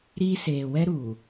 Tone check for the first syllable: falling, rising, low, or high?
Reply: high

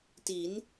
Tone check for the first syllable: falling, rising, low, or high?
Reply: rising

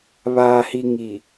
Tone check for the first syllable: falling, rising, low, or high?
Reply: low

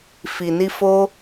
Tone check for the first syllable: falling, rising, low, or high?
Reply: low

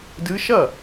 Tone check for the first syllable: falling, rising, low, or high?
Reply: rising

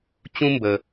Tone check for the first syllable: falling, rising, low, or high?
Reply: high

